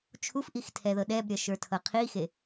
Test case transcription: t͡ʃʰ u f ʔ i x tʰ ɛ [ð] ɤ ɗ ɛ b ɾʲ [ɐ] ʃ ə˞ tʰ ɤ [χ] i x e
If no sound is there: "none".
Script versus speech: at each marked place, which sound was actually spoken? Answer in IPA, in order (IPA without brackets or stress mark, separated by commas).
ð, ɐ, qʰ